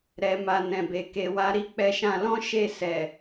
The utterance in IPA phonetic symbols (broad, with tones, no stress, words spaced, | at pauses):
ɾɛ˧ma˧ nɛ̃˨be˨ ke˧wa˦ ɾi˦k͡pɛ˧ʃã˧lɔ̃˦ ʃe˦˨sɛ˨